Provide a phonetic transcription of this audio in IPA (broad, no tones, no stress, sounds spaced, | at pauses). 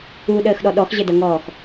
u ɗ əː x ɗ ɔ ɗ ɔ x ʑ ə d ʌ ŋ ɔː x